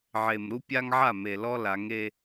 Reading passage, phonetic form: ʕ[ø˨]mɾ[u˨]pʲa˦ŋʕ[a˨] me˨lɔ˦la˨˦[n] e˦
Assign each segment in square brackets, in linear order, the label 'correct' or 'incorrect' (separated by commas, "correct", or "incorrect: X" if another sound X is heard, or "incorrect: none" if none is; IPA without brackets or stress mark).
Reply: incorrect: e˨, incorrect: u˦, incorrect: a˦˨, incorrect: ŋ